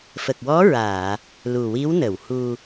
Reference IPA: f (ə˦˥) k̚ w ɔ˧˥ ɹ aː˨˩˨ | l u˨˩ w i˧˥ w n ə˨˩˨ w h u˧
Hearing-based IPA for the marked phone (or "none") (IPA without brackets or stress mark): ə˨˩